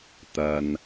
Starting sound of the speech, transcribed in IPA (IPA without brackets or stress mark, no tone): t̪